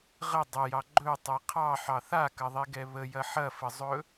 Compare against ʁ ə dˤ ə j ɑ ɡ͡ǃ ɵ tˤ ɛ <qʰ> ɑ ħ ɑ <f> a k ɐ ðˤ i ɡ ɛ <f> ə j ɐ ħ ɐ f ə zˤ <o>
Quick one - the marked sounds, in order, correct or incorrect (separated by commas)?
correct, incorrect, incorrect, incorrect